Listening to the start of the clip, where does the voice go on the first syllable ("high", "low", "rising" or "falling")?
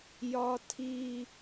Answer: high